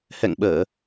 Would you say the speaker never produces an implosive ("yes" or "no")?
no